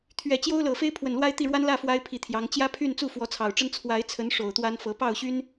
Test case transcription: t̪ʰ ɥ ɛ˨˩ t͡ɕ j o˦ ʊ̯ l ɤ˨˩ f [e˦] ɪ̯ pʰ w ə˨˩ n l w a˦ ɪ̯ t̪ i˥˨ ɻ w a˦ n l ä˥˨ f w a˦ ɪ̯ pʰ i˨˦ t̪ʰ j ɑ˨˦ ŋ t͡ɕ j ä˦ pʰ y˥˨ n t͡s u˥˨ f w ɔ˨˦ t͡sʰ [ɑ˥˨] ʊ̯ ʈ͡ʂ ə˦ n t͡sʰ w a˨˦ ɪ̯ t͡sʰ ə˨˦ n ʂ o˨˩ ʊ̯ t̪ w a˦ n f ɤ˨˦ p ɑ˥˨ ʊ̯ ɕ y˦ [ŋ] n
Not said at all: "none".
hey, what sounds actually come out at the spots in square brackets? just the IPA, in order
e˦, ɑ˨˩, none

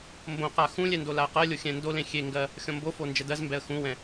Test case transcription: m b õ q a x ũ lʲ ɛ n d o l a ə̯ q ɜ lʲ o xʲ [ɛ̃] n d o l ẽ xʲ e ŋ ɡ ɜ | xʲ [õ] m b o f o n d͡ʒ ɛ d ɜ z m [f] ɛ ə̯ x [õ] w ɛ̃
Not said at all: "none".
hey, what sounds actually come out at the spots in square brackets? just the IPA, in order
ɛ̃, ɔ̃, b, ũ

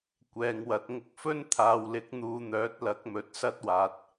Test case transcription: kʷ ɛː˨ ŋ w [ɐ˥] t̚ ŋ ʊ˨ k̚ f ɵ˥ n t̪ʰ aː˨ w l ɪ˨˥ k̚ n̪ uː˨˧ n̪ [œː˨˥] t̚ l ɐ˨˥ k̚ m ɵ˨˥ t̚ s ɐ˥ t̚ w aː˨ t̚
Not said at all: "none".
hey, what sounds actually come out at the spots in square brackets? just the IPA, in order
ɐ˨˥, œː˨˥

